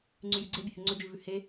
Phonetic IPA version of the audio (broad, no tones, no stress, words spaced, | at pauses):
ŋ͡ǀʉjʉɡ͡ǀe bʲɛhʉŋ͡ǀɵ d͡ʒʉvʉhe